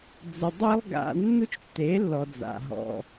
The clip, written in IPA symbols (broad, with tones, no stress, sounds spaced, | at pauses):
d͡z ʊ˧ dˤ i˦ lˠ ɡ a̰˧ nː u˦ t͡ʃ tː e˨˦ lː ɔ˨ d͡z a̰˨ ɦ ɔ̰˨